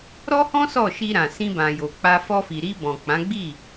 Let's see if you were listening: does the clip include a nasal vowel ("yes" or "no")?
yes